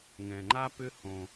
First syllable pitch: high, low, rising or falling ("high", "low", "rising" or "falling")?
low